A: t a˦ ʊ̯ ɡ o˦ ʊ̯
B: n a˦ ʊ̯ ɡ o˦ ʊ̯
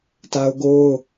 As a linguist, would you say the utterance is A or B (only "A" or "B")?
A